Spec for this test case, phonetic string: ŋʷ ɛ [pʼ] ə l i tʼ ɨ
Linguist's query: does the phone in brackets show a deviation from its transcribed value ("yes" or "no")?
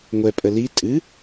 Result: no